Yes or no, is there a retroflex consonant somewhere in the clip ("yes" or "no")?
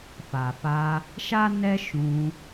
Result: no